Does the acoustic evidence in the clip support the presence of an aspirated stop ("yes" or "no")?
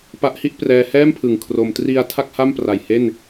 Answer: yes